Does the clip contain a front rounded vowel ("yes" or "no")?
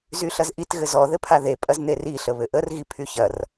yes